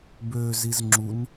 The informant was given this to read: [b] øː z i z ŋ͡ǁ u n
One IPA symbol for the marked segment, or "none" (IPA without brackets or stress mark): b